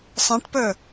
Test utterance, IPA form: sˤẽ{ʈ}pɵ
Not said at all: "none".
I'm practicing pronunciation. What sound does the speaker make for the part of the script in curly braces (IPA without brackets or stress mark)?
ʈ